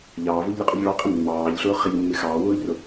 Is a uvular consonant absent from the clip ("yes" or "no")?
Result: no